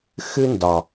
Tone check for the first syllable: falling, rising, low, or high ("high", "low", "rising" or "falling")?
high